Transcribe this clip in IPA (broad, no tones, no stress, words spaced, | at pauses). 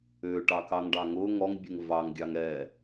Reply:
ʏː ʈɑkɑŋɖɑŋʊː ŋɔŋbʲʊŋ vɑŋɡʲɑŋ ɛ